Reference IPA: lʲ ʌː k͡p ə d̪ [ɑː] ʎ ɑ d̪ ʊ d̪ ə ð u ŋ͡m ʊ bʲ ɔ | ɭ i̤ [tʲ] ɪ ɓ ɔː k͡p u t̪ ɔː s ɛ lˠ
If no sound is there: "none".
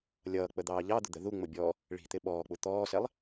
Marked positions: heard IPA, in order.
ɑː, t̪

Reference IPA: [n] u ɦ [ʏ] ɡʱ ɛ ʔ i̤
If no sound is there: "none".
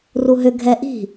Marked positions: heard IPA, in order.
r, ʏ

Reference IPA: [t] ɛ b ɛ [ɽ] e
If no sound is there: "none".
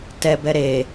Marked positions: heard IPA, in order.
t, ɾ

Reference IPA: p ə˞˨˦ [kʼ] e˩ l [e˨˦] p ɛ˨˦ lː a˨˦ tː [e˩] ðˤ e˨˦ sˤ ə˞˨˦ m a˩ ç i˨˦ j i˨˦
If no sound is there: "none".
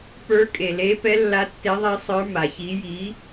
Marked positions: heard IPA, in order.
kʼ, e˨˦, e˨˦

